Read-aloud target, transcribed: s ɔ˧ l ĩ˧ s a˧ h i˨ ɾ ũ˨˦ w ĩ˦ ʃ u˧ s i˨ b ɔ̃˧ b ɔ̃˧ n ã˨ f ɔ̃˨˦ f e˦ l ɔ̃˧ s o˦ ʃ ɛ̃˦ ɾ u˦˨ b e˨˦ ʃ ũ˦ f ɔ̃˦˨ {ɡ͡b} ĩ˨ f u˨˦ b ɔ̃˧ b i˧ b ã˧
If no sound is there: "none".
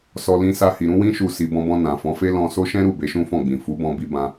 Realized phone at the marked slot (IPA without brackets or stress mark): ɡ͡b